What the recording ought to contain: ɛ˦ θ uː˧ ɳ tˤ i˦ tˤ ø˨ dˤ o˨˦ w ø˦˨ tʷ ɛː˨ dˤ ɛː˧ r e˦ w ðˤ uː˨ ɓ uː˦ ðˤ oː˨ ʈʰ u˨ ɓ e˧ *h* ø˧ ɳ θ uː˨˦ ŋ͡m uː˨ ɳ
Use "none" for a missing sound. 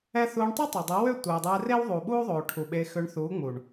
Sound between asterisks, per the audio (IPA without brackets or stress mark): x